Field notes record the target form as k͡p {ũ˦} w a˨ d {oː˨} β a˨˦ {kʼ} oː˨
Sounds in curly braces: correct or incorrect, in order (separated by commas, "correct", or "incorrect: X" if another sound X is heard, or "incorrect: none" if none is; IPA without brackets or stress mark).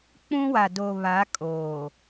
correct, incorrect: o˨, correct